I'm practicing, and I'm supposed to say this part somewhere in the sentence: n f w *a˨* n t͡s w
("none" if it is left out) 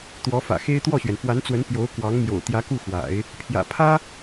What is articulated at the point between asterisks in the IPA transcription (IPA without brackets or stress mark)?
a˧˥